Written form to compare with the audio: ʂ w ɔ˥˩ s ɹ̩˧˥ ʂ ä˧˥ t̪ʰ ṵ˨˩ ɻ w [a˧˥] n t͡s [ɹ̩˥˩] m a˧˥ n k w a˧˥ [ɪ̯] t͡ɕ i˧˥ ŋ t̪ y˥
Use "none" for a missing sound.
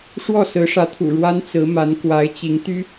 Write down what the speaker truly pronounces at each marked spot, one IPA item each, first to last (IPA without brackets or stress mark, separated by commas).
a˥, ɹ̩˧˥, ɪ̯